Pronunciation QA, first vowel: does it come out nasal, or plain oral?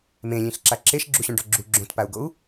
nasal